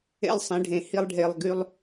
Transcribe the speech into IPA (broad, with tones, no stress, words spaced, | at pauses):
ḛ˦lˠsˤẽ˨˦ɖʱẽ˨ hi˦lˠɖʱe˨lˠɡy˦lˠ